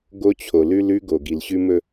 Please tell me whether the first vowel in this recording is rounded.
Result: yes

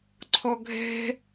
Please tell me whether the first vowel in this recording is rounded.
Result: yes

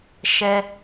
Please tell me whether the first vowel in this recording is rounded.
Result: no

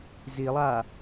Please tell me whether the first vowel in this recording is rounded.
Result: no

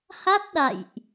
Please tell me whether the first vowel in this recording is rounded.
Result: no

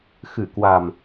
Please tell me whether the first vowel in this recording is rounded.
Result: no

